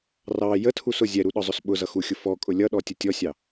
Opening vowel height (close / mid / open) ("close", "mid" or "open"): open